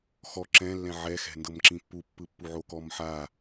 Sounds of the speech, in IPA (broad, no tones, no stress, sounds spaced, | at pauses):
x ɔ ǁ ɛ̃ lː ɛ̃ ʕ ɛ x ɛ̤ n d ɤ m ǁ ĩ pː u pː ɯ pː u ʕ o k ɔ m ħ a